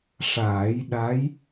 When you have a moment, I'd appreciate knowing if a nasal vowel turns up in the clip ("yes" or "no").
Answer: no